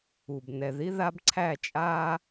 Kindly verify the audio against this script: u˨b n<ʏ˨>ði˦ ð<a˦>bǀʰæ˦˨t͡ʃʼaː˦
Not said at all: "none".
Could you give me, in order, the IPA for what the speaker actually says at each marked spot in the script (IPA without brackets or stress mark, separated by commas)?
ɛ˨, a˦